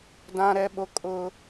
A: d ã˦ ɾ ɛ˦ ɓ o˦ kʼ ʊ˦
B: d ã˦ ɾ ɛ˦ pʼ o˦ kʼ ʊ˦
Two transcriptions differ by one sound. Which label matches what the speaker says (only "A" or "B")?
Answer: A